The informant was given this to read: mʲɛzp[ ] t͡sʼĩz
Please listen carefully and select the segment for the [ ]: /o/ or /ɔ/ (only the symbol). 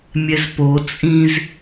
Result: o